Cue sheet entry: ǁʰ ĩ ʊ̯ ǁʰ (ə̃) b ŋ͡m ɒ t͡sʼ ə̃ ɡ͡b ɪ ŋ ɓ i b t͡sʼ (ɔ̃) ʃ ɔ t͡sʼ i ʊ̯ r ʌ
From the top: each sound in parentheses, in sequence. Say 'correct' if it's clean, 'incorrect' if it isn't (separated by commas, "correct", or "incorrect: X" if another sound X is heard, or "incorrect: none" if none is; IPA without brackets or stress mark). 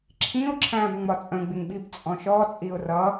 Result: incorrect: æ̃, correct